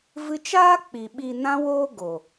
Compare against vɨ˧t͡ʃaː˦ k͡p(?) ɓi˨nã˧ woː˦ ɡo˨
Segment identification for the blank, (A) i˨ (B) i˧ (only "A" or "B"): A